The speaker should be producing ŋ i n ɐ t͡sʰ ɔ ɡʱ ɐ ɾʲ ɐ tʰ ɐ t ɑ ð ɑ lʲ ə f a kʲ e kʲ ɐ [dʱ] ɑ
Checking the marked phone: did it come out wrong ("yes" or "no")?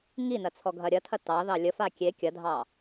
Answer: no